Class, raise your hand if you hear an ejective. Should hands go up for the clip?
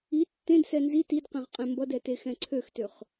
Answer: yes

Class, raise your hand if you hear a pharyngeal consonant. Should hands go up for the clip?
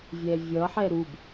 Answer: yes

